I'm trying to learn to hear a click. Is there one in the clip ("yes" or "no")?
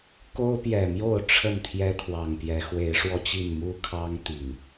no